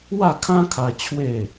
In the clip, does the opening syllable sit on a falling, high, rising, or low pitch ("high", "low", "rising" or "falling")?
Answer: falling